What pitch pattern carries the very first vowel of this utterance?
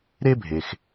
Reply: high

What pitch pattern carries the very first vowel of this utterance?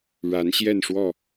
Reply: rising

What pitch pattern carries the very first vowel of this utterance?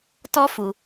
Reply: high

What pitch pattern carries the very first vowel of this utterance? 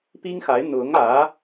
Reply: high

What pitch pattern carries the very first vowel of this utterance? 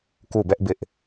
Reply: falling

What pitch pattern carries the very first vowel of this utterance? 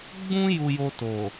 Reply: high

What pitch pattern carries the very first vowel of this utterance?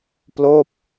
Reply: falling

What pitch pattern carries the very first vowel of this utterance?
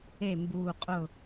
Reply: falling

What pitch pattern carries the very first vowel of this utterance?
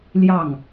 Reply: falling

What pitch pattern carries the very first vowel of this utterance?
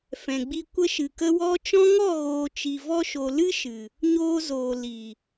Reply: low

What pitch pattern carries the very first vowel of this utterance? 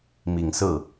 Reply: low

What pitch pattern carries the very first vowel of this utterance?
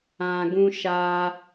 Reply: low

